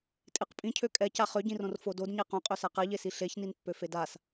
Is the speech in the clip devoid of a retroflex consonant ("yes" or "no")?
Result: yes